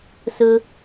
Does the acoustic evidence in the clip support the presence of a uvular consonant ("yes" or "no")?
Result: no